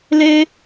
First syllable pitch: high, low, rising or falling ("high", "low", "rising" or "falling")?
high